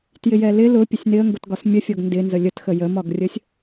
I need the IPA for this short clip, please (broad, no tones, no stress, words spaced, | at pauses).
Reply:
tjɪjɛlɪ lʊ pʲəsʲnɪə̯ŋɡʊtɡɒs mʲəfʲɔɡ ndɪnzə lʲətxə jəmɒɡrʲəsʲ